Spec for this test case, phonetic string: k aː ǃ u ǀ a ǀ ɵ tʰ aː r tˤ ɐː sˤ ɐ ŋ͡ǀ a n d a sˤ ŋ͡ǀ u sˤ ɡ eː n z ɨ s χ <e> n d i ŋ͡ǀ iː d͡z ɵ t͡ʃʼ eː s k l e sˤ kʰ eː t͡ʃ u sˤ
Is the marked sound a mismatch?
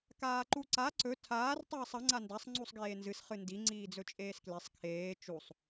yes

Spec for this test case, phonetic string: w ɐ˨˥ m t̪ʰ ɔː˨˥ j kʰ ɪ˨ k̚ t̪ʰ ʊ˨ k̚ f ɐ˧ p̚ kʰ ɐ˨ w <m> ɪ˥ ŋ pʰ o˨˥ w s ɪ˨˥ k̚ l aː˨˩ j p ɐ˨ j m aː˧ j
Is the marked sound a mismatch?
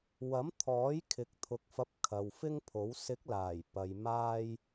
yes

